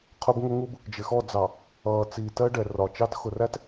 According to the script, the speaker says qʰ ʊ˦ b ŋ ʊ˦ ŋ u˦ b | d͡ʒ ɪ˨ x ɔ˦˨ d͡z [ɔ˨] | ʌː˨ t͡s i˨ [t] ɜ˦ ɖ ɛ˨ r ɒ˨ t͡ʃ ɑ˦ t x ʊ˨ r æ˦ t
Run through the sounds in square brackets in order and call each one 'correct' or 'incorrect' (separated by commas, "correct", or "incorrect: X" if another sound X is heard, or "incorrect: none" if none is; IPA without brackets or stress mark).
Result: incorrect: ɑ˨, correct